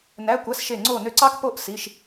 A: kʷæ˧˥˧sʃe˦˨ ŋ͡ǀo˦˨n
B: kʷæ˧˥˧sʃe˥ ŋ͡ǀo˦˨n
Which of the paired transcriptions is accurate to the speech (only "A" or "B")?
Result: A